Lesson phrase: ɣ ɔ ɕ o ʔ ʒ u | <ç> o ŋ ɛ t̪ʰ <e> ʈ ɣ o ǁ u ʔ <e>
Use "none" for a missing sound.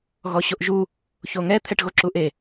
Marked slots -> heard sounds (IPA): ç, ɛ, e

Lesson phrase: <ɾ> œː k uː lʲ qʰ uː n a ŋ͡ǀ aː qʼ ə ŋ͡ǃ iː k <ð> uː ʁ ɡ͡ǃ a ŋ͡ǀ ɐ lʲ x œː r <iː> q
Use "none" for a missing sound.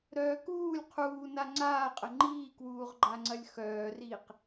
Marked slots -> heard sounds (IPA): ɾ, w, iː

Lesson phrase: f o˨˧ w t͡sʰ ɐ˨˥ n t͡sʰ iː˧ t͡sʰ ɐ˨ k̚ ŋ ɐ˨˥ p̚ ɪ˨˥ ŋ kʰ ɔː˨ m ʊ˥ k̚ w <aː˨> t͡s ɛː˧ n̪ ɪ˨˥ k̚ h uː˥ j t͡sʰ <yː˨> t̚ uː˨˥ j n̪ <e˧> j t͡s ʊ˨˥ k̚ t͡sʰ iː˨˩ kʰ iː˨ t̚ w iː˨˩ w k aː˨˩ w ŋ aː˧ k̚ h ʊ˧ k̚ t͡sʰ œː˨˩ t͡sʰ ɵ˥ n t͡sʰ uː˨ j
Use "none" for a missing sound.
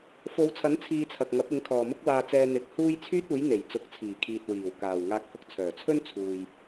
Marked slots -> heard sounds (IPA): aː˧, yː˥, e˨˩

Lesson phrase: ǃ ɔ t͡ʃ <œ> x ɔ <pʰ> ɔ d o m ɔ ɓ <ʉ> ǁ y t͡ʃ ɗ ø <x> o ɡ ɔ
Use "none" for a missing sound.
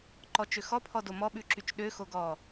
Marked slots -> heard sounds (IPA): ø, pʰ, ʉ, x

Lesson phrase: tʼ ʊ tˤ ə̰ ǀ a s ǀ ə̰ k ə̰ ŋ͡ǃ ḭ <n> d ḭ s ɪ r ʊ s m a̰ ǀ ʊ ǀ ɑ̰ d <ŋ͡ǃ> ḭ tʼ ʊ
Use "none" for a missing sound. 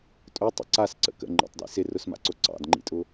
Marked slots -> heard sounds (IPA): tˤ, ŋ͡ǃ

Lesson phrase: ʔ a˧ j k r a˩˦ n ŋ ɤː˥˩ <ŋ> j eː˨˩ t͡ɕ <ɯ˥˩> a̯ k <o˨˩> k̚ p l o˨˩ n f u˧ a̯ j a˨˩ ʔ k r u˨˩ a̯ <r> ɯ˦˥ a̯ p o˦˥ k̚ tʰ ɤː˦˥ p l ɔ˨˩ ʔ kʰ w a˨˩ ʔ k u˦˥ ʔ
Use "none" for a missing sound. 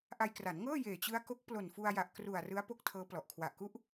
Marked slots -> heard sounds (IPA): none, ɯ˦˥, o˦˥, r

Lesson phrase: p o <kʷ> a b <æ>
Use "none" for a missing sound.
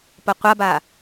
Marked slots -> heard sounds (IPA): qʷ, a

